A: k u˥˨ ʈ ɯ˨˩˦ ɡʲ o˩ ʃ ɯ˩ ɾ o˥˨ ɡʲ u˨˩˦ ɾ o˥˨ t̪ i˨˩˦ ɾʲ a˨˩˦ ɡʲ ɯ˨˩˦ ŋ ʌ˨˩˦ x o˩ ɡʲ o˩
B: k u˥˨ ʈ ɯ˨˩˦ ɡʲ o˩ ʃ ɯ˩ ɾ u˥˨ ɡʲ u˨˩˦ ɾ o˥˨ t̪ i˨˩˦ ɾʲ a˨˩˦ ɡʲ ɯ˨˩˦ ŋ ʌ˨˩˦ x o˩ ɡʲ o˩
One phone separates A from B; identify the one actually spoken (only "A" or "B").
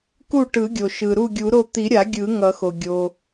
B